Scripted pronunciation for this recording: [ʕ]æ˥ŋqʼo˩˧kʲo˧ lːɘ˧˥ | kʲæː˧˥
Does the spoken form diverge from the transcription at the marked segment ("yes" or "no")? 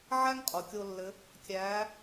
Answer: no